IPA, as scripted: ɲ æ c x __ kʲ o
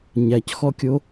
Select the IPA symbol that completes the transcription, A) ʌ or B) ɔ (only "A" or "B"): B